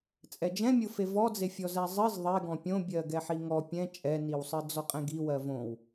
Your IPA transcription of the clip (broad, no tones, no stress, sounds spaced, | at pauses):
t͡sʼ ɛ d͡ʒ ɛ̃ mʲ ʊ f e v ɔ d͡z e fʲ ɔ z ɛ zˤ ɨ z ðˤ e ɡ ɔ̃ pʲ õ bʲ ɜ ɡ ɛ ħ i ŋ ɔ pʲ ɛ̃ t͡ʃʼ ɛ n i w sˤ ɨ d͡z ɔ qʼ ɛ̃ ɡ i w ɜ v õ w